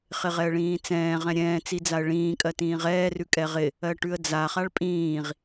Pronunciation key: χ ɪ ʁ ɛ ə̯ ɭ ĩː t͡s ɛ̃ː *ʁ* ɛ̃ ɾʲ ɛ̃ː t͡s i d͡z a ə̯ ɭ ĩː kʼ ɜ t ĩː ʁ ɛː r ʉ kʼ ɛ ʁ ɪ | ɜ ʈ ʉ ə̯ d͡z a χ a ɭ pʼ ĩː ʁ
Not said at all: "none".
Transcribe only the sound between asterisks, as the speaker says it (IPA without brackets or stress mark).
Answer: ʁ